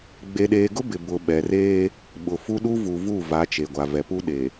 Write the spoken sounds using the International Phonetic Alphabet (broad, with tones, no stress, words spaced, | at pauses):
ɡ͡be˨ɗeː˨ɡʊ˦ bɪ˨ bʊ˨ ɓɛ˨reː˦ | ɓʊ˨ fu˦ɗu˦vu˨vu˦˨ va˨˦t͡ʃe˨ɡʷa˨vɛ˨ pu˦ɗe˨